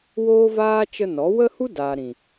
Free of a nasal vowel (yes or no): no